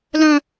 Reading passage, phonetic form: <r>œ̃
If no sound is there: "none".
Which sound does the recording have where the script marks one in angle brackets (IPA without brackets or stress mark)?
l